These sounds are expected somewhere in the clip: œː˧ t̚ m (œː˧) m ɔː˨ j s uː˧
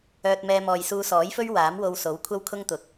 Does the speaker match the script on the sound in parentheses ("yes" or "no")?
no